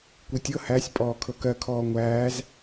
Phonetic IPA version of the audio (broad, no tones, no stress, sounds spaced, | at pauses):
kʷ i tʲ ɤ h æ sʲ pʼ ɔː kʰ ɤ k ɜ kʰ ɔː ŋʷ æː z